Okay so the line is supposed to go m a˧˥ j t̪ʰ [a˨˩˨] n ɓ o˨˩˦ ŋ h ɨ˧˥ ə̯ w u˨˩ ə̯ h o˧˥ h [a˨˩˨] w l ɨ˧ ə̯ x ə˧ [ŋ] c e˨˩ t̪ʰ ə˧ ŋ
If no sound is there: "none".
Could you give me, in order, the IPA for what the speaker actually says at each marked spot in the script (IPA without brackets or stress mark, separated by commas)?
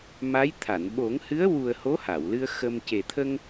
a˨˩˨, a˨˩˨, m